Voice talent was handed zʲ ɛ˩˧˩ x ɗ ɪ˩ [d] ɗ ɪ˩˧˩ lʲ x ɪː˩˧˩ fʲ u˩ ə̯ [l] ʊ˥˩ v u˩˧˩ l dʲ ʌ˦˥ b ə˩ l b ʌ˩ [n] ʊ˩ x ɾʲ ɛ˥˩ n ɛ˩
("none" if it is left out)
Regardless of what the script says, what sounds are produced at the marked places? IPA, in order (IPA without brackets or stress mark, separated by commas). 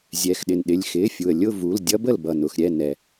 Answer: n, lʲ, n